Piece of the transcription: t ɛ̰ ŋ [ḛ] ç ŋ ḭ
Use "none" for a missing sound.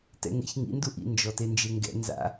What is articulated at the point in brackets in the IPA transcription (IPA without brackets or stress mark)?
ḛ